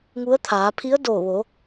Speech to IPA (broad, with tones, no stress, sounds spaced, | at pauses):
ŋ u˧˥ ə̯ t̪ʰ aː˩˧ pʰ i˧˥ ə̯ d oː˧˩ ʋ o˩˧